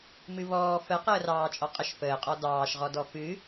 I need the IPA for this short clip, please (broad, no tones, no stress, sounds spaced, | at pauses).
m ɨ β ɔː f ə q əː r ɑː t͡ʃʼ ɔ qʼ ə ʃ f əː qʼ ɔ d ɑː ʃ ʁ ɔ d ɔ f ɨ